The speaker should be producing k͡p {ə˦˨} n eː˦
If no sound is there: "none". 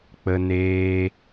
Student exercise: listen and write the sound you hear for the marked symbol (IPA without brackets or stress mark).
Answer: ə˦